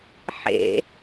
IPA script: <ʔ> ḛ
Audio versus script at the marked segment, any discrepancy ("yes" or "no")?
yes